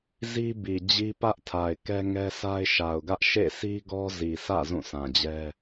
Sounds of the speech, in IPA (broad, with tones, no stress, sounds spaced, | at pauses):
z i˦ b i˨ d͡ʑ i˦ p ä˦ ʔ tʰ a˨ ɪ̯ k ɛ˦ ŋ ɛ˦ sʰ a˦ ɪ̯ ʃ a˨ ʊ̯ ɡ ä˦ ʔ ʃ ḛ˦˨ s i˦ ɡ ɔ˦ z i˨ sʰ ä̰˦˨ z ũ˦˨ sʰ ã˨ d͡ʑ ɛ˦